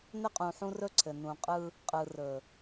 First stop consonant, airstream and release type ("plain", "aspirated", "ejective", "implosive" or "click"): ejective